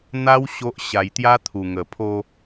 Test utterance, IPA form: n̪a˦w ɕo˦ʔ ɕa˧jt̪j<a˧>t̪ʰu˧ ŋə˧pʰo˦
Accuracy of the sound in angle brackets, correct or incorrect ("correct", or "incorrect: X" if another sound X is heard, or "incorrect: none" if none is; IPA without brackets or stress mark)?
incorrect: a˦